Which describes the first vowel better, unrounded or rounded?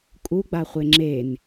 rounded